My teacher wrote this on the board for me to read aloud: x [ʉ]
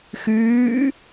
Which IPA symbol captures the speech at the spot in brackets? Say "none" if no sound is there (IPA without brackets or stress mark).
ʉː